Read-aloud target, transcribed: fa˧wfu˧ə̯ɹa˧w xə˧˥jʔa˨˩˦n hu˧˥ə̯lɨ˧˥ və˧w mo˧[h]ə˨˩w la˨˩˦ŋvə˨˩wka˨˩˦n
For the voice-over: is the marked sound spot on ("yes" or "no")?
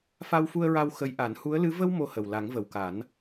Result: yes